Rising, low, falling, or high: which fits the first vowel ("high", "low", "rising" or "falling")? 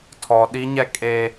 low